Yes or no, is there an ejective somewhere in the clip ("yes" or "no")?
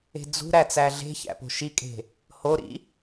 yes